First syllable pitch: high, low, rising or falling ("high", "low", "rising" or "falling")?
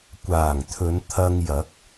low